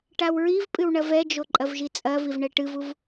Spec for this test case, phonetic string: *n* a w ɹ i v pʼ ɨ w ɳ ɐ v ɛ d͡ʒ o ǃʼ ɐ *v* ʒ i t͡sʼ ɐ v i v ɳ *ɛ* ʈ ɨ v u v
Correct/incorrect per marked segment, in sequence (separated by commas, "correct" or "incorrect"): incorrect, correct, correct